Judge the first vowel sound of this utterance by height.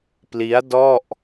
high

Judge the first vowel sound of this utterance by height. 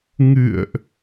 high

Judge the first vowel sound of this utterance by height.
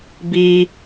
high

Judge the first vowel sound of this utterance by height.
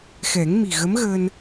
mid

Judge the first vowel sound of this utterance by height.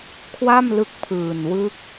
low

